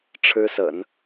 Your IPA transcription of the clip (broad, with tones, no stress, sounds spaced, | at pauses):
ʈ͡ʂʰ ɻ̩˥ s ə̰˨˩˦ n